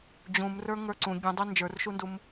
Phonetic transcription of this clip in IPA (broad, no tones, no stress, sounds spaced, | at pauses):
d͡ʑ ũ m r ə˞ ŋ ə˞ ǀ ũ ɡʲ ũ dˤ u n d͡ʒ ə˞ r ʃ u n d u m